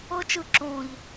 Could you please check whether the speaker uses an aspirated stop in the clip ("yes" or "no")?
no